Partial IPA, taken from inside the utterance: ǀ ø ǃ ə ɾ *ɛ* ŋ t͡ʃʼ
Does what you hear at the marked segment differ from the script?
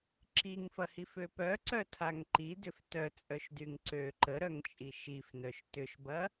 yes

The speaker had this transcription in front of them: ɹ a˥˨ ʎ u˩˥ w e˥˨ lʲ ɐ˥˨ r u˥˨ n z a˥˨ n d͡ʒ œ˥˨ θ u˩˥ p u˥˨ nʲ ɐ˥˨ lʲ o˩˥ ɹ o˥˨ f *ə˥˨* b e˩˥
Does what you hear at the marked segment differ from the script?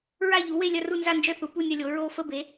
no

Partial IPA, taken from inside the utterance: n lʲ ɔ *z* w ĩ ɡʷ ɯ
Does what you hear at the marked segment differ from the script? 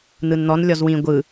no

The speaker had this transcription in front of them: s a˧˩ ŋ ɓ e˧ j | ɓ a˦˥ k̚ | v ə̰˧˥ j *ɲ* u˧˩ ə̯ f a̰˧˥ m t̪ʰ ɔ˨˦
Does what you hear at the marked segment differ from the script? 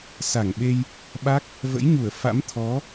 no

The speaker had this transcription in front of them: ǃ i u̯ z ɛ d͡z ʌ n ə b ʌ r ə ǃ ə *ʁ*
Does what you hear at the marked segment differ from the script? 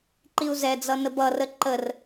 yes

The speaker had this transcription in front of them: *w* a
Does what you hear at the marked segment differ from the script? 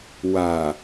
no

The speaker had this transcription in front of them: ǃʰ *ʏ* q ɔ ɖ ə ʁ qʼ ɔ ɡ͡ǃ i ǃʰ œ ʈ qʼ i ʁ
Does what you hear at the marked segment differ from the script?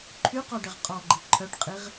yes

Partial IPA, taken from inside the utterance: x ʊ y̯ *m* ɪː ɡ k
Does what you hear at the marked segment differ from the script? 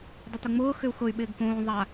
yes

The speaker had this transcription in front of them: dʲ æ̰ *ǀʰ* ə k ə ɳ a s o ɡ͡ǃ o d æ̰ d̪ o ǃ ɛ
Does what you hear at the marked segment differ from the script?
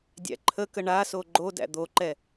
yes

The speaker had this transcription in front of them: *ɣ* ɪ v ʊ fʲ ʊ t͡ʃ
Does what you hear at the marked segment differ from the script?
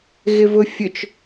no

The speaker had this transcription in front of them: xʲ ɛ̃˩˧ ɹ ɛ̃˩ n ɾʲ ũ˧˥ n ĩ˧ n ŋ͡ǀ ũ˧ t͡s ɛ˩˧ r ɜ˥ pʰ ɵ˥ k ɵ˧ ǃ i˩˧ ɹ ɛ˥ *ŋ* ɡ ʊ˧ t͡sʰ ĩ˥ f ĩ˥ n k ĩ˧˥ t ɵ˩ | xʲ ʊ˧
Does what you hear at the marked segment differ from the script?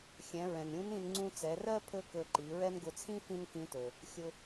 yes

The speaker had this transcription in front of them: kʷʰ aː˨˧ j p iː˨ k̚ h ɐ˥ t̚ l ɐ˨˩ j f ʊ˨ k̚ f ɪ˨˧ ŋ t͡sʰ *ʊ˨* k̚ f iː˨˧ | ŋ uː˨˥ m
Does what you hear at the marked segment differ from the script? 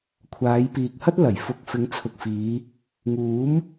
no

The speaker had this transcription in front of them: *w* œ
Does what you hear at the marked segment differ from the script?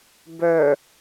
yes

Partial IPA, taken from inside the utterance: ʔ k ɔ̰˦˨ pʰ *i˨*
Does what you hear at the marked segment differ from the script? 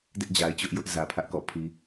no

